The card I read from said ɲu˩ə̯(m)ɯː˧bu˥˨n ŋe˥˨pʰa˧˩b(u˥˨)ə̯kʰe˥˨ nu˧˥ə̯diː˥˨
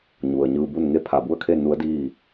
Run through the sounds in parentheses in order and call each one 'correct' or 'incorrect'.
incorrect: ɲ, correct

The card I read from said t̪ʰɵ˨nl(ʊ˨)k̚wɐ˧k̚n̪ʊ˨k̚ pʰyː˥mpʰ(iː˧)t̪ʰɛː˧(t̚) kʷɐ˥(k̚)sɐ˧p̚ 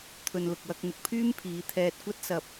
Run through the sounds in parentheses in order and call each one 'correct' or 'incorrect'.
correct, incorrect: iː˨˧, correct, incorrect: t̚

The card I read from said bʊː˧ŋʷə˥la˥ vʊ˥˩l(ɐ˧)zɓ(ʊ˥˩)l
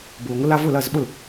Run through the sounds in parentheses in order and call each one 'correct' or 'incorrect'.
incorrect: ɐ˥˩, correct

